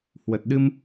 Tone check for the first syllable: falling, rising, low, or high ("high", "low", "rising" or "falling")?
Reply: low